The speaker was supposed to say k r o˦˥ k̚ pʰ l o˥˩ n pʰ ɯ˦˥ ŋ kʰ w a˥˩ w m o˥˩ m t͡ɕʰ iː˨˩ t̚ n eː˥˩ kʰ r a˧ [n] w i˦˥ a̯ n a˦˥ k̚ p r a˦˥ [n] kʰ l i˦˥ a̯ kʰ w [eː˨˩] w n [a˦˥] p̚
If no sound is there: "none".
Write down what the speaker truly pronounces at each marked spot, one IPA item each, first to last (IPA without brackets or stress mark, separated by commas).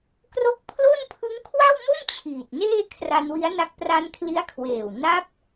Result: n, n, eː˨˩, a˦˥